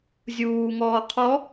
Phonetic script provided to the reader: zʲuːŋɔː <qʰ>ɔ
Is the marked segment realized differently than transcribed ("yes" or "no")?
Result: no